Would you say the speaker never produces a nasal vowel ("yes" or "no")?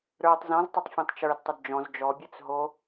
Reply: no